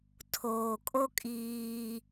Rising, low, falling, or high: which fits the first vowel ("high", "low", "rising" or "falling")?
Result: low